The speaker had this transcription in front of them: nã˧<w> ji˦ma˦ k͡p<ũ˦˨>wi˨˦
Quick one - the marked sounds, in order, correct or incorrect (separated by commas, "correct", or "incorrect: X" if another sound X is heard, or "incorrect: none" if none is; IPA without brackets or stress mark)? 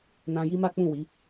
incorrect: none, correct